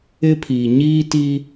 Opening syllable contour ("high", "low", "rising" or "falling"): high